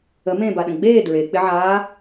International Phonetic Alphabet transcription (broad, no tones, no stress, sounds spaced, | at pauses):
ə m ẽː b a ɗ ə̃ ɡ͡b eː d ɹ e k͡p ɪ ʕ aː